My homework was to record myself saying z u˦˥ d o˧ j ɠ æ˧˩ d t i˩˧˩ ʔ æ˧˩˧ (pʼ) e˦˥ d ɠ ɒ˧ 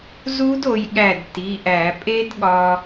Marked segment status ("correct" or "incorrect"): correct